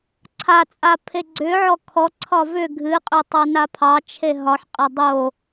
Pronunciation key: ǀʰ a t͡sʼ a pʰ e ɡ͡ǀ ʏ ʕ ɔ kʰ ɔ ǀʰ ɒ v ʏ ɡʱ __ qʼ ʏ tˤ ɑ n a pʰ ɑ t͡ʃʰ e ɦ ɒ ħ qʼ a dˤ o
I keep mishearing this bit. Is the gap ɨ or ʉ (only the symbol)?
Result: ɨ